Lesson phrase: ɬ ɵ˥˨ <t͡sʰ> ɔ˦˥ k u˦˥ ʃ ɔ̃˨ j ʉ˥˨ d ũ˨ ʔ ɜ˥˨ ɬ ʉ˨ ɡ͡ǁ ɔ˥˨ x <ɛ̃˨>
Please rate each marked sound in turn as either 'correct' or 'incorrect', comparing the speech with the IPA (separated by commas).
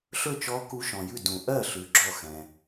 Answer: incorrect, correct